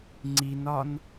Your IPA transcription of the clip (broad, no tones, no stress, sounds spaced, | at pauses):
ŋ͡ǀ i n ɒ n